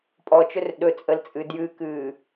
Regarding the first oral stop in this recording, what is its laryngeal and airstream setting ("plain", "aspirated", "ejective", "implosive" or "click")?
ejective